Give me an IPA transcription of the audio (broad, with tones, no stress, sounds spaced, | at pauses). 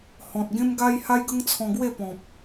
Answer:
h ɔ̃˨ t̚ ɡ ẽ˦ m ɡ a˦ j h a˦ j ɡ ə˦ ŋ t͡sʰ ɔ̃˧ ɡ w e˥˧ p ɔ̃˨ p̚